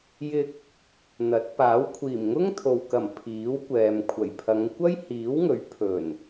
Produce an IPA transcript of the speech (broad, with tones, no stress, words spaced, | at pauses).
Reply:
jɪ˧k̚ | n̪ɐ˨˥t̚ paː˨˥w kʷʰiː˨˩mŋʊ˥ŋt̪ʰo˨wkɐ˨˩m pʰiː˨˥wkʷɛː˨m kʷʰɐ˨˩jpʰɐ˨˧ŋ kʷɐ˥jhiː˨˥wŋɵ˨˥ɥ pʰɵ˨˩n